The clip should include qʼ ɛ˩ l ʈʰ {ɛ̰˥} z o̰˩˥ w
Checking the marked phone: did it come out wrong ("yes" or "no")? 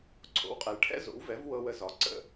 no